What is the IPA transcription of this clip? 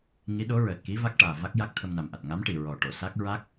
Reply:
ŋi˧˥ɗo˧˥ɹəː˨˩t̚ki˧˥ va˦˥k̚ʈaː˨˩va˦˥k̚ja˦˥k̚ t̪ʰə˧mna˨˩mʔa˨˩t̚ ŋa˧˥m ʈi˨˩ ɹɔ˨˩ʈo˨˩˨ sa˦˥k̚ ɹa˦˥k̚

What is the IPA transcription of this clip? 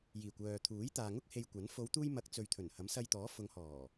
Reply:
jiː˨˩ kʷœː˨ t̪ʰuː˨˥jt̪aː˨ŋʊ˥k̚ he˧jkʷɐ˨˥n fo˨˧wt̪uː˧j mɐ˨˥k̚ t͡sɵ˨ɥt̪ʰɵ˨˩n hɐ˨˥msɐ˧jt̪ɔː˨˥ fʊ˨˧ŋhɔː˨˩

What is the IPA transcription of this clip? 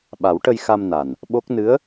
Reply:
ɓa˨˩˦wʈə˧jxa˧m na˨˩n | ɓo˦˥k̚ nɨ˧˥ə̯

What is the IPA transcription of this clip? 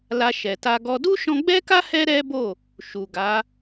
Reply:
la˧ʃɛ˨ta˧ɡɔ˧ du˦ʃɔ̃˧ɡ͡bɛ˦ka˦ hɛ˦ɾɛ˦bo˦˨ | ʃu˨ ɡa˨˦

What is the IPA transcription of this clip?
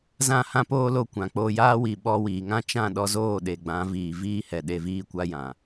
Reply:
zã˦˨hã˦poː˦ lo˦˨kʷã˨k͡poː˧ jaː˦wi˨ ɓɔ˧wiː˨ŋã˦ t͡ʃã˦˨ɗɔ˧zoː˦˨ ɗe˨ɡ͡bã˨˦ viː˨ viː˦hɛ˨ ɗe˨viː˧kʷa˧ jã˨

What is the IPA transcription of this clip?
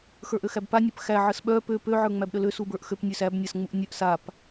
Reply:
xə˞ʔøxæbpa nʲœpxæ ʕəsɓœ pø pø ʕə˞ŋ͡mæbɗəlø subə˞ʔxøp nʲøsæb nʲasŋ͡muʔnʲœʔ sap

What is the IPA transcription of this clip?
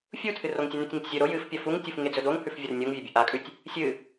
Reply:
fʲutʰɨr oŋtʲɵnʉtʲŋɵtʲ zʲɵ ɾo jɨfpʲɐ fuŋtʲufŋe d͡zɵdoŋhʉfvʲɐr nʲoŋvʲɐ bʲuʔakʼʉtʲ | sʲɨ

